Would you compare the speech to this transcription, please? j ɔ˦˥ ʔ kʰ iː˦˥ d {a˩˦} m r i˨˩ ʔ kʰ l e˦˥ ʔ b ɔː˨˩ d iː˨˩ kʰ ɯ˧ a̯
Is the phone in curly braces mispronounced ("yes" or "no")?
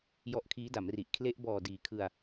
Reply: no